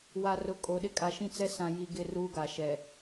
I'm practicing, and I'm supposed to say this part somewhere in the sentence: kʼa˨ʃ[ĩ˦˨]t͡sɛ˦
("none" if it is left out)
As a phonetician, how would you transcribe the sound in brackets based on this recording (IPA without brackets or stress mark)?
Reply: ĩ˦